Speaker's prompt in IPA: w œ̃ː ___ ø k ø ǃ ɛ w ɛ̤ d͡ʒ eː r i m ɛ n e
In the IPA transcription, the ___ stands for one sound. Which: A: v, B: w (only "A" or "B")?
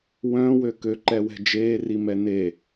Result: B